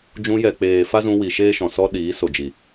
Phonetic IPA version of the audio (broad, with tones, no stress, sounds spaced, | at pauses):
d͡ʒ ũ˧ j ɛ˨ k͡p eː˨ f a˦ z ũ˧ w i˨ ʃ eː˦ ʃ ɔ̃˨ s ɔ˦ ɗ iː˨˦ s o˨ d͡ʒ i˨